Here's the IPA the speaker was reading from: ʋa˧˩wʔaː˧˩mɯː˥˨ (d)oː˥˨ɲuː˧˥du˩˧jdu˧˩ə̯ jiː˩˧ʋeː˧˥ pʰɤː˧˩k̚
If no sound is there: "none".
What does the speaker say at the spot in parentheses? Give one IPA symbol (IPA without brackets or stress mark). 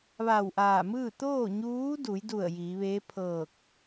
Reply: t̪